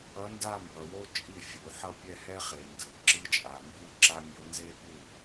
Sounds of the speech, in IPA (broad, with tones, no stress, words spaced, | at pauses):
ʌ˧˥nda˥˧ mbʌ˨wo˥t͡ʃʼi˥˩ fʲu˨˩˦ ħʌ˥˧pʲɛ˥˧hɛ˥χe˨ ndɯ˨˩˦ ǁɯ˧˥t͡ʃʼa˨ mbu˥˧ǁa˥mʲo˧˥ nze˥pu˥˩